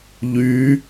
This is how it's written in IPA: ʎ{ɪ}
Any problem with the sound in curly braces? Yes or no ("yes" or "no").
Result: yes